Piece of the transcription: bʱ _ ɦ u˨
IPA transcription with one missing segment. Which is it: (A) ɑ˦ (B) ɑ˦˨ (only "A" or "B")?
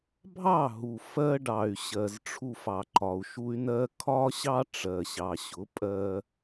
B